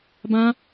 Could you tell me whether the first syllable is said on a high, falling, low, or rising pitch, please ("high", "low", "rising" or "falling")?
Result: high